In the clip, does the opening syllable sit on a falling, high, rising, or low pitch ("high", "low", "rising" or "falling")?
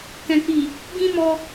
low